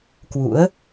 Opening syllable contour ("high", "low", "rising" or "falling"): rising